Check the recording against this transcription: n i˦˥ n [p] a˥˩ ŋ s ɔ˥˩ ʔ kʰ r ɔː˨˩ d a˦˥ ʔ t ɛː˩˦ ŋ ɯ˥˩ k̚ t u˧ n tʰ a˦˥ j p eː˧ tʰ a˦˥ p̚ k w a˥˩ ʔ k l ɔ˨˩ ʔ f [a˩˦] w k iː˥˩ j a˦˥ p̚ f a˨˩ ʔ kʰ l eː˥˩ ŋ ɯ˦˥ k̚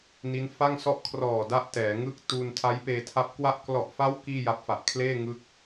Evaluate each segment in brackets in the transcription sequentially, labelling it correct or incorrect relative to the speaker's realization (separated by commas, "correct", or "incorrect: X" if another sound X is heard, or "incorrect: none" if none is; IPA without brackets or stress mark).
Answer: incorrect: f, incorrect: a˦˥